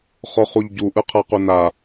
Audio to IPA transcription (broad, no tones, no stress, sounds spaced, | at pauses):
χ ɔ χ u ʎ ɟ u ʔ ɯ qʰ a q u n a